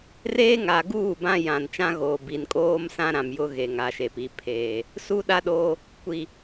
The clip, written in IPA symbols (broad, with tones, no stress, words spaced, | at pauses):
reː˦ŋa˨ ɡuː˦˨ bã˦jã˨nt͡ʃã˦ ɣoː˨bi˨nkʼoː˦msã˦ ɾã˨mjʊ˦ ɣe˨ŋa˨ʃe˨pi˨ pʰeː˨ | su˦ɗa˦ɗoː˦ | kʷi˨